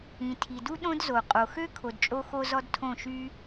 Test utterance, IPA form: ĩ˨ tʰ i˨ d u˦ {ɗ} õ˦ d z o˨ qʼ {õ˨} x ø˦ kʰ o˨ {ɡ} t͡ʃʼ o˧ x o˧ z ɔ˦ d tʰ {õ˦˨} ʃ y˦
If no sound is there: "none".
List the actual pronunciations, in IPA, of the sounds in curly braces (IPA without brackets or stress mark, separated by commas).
ɗ, o˨, d, õ˦˨